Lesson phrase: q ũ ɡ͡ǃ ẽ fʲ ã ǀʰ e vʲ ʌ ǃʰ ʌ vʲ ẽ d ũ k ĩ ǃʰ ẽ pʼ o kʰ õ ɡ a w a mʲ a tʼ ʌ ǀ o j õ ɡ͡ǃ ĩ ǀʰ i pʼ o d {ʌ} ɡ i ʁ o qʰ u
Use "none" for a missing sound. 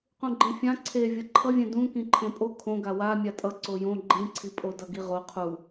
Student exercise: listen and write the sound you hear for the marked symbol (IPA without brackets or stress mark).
ʌ